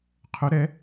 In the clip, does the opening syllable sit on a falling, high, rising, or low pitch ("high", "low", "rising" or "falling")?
rising